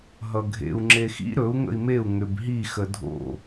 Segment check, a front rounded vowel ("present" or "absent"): present